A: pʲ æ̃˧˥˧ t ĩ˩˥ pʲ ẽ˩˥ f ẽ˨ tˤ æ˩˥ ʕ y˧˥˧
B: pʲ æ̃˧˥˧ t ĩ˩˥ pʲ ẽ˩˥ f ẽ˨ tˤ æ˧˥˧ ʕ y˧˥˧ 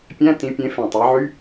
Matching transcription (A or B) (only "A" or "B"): A